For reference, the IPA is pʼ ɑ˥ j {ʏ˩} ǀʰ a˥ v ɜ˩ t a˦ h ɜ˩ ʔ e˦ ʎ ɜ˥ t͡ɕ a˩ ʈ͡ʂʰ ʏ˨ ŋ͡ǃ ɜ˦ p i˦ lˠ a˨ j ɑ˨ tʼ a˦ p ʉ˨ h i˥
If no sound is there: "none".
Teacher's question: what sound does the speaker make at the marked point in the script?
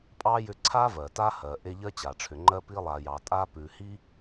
ʏ˦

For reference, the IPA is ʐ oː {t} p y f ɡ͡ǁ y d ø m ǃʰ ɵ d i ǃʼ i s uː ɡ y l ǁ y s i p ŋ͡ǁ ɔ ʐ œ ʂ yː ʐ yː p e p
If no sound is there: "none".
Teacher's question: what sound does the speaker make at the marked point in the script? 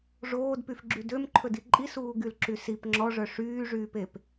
d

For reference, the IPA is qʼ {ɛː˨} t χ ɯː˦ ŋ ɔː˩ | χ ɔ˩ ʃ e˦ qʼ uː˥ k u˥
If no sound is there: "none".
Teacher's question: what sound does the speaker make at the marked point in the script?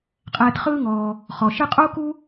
ɛː˨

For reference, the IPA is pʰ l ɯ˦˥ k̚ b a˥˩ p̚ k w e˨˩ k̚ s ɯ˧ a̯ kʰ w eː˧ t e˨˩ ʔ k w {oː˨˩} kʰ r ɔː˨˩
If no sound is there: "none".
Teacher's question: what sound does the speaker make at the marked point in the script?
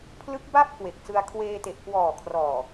ɔː˨˩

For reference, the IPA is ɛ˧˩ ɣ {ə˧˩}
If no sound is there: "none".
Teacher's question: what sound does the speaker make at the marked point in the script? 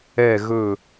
ɵ˧˩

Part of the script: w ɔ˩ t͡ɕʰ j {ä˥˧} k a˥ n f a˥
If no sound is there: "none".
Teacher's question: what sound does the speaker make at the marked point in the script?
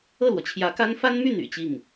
ä˧˥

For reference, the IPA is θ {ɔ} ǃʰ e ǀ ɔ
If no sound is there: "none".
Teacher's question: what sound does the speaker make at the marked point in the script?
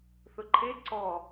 ʊ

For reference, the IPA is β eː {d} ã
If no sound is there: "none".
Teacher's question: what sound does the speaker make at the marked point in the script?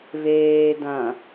d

